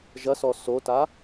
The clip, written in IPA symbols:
ʒɐsɔ sota

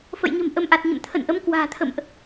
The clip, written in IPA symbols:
fə̰˧˨jɲə̤˨˩m ʔə˨˦mʔa˨˩t̚ɲə̰˧˨m t̪ʰə̰˧˨nʔə˨˦m kwa̤ː˨˩t̪ʰə̰˧˨mʔ

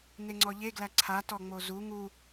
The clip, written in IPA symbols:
neŋ͡ǀɔʎe ɡlæǀʰa tɔŋ͡mozu ŋu

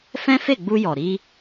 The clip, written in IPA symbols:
fɛ̃˦fe˦˨ɡ͡bu˧ jɔ˨ɾi˧

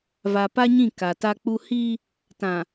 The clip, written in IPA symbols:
va˨pa˦ ɲĩ˦˨ ka˨ta˦k͡pu˦ hiː˦ | tã˨

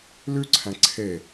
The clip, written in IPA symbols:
lʉǀʰæ̃ ǀʰe

